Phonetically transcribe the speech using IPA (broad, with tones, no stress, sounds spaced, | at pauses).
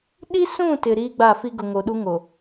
ɗ i˦ s ũ˦˨ t ɪ˨ ɾ iː˦ ɡ͡b a˦˨ f i˦ ɡ ʊ˨ ŋ o˨ ɗ u˦ ŋ o˨